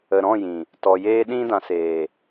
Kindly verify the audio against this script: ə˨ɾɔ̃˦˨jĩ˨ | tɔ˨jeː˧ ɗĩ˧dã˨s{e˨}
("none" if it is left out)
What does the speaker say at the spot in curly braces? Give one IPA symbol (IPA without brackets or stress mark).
eː˨